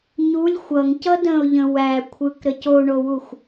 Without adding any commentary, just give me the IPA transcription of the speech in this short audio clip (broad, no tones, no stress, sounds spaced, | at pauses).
ɲ u lʲ xʷ ʌ ŋ c ʌ d ə̃ ʊ̯ ʎ ə̃ w æ kʷʰ ɯ k ɾ ɘ c o ɳ o w u xʷ